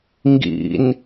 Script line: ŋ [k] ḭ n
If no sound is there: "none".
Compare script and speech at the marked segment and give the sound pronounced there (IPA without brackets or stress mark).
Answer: ɡ